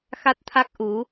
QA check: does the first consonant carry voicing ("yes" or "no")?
no